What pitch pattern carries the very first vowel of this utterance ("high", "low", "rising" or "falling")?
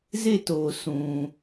falling